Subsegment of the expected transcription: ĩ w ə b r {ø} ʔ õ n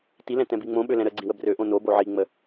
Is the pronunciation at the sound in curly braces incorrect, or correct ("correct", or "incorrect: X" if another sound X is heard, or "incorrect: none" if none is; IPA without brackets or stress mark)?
correct